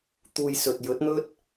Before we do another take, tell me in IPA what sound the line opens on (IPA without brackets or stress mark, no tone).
t̪